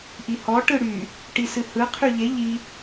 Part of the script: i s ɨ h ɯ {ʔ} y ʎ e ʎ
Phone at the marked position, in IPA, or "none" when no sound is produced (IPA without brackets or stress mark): qʰ